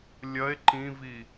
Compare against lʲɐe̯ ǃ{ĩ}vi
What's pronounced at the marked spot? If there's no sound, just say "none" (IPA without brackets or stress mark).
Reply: ĩ